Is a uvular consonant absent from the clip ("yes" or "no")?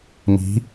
yes